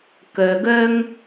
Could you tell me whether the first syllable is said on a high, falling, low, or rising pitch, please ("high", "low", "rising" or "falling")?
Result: low